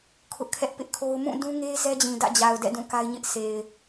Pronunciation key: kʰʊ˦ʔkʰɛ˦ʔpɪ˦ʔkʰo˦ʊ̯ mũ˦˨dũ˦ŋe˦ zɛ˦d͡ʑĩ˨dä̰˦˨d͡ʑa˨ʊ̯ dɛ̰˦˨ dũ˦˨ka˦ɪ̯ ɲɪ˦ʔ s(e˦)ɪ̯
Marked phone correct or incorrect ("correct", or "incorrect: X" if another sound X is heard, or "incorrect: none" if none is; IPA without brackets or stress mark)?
incorrect: e˨